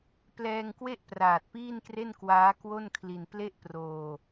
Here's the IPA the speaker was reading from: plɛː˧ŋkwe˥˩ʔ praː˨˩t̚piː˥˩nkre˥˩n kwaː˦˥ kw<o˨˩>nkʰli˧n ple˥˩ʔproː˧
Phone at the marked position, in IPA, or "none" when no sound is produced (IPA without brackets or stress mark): o˥˩